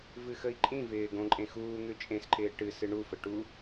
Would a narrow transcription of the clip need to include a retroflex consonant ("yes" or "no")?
yes